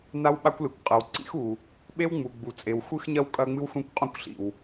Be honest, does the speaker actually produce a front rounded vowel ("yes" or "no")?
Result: no